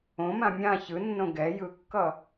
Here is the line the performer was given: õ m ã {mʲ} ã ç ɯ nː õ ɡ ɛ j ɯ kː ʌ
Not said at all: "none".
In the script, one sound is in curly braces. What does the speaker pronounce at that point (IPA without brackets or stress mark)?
mʲ